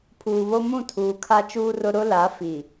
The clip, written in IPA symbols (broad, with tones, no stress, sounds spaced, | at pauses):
pʰ uː˨ β o˦ m ũ˦˨ tʰ uː˨ kʰ a˦ t͡ʃ uː˦ r ʊ˦ ɾ ʊ˦ l a˨˦ f i˨